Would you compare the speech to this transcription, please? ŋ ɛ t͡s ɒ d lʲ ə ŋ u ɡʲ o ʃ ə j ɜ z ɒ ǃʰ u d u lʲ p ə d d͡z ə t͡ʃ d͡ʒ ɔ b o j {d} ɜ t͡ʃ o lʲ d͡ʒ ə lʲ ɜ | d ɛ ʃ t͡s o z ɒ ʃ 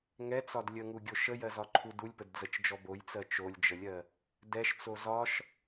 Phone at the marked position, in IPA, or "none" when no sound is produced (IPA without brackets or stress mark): t͡s